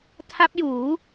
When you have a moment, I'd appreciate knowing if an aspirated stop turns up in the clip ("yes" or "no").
yes